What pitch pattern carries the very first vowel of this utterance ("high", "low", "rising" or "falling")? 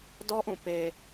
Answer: high